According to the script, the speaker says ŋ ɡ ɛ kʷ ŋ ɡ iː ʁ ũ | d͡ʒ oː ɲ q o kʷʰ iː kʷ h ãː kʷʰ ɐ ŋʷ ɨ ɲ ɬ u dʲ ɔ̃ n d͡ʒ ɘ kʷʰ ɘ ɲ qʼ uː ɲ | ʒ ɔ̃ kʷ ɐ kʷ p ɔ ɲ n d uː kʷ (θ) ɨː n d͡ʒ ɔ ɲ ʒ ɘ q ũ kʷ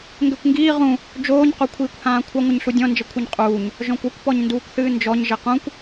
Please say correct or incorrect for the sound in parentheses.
correct